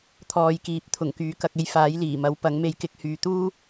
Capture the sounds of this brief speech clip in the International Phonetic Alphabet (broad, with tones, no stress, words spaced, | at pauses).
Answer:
t̪ʰɔː˨j kiː˨˥p̚t̪ʰʊ˨˩ŋkyː˨˥kɐ˧k̚ e˧jfaː˨˥jliː˨˩mɐ˨˥w pɐ˨˥ŋme˧j kɪ˧k̚hyː˨t̪uː˥